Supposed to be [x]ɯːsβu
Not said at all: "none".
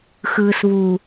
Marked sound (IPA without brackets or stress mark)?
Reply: x